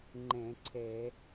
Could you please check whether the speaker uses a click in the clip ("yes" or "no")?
yes